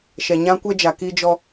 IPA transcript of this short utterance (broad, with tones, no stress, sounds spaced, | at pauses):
ʃ ɛ˨ ɲ ã˦ kʷ ɛ˦ d͡ʒ a˨ k i˦ d͡ʒ ɔ˦